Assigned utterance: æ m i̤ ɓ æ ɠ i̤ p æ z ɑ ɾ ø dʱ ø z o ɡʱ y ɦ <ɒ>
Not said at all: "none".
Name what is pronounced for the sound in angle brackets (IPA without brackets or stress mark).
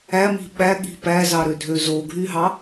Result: ɑ